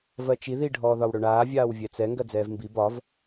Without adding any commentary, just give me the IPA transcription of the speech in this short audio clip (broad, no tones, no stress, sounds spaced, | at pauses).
v ɜ t͡ʃ i ð i ɖʱ ɔː ð ɒ w ɽ ɵ ɳ aː vʲ aː w vʲ ɛ t͡s ɛ ŋ ɡ ɜ d͡z ɛː v m b i b ɒ v